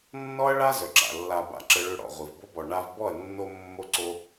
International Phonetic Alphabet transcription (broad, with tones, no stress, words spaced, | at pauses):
nːɔ˦ɐ̯ɭa˦zœ˨ǁa̰˨ lːa˨ ba̰˧ǁə˧ɭø˧ɽɔ̰˨ ʁʷi˨vbo˦bɔ˨ ɳa˧vbɔ˦˨ɐ̯ nːo˧ mːo˦ǀo˦